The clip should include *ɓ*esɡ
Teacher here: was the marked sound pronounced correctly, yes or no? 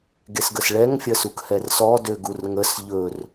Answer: no